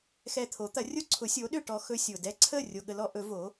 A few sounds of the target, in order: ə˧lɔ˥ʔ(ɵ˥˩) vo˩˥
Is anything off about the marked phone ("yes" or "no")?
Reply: yes